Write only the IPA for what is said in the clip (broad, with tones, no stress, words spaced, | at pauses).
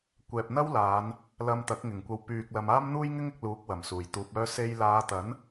kʷɛː˨p̚n̪ɐ˥wlaː˨˧n | lɐ˧m t̪ɐ˨˥k̚ŋɪ˨˩ŋkʷɐ˨w pyː˨k̚lɐ˨m aː˥mn̪uː˥jŋɪ˥ŋ ɪ˨˥k̚luː˨˥k̚ wɐ˨˩msuː˨˩jt̪uː˨p̚ œː˧se˧j laː˨˧t̪ɐ˨˥n